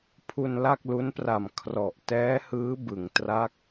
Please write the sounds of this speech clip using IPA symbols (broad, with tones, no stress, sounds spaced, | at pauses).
pʰ u˧ n l a˥˩ k̚ l u˦˥ n p r a˨˩ m kʰ r ɔ˨˩ ʔ t ɛː˦˥ h ɯː˦˥ b ɯ˩˦ ŋ t r a˦˥ k̚